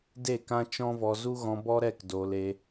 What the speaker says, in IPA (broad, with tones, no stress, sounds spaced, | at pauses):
d e˦˨ k ã˦ t͡ʃ ɔ̃˦ v ɔ˧ z u˦ ɣ ɔ̃˧ b ɔ˦ ɾ ɛ˦˨ k d oː˧ l e˧